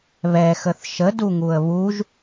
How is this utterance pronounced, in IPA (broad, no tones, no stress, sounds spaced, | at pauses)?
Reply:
β ɛ x ə θ ʃ ə d u ŋ u ə̯ β u ʒ